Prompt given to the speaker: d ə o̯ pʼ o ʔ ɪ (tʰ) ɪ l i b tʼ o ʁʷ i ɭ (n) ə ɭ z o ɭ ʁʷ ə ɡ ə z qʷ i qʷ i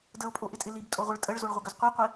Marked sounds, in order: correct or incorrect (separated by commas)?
incorrect, incorrect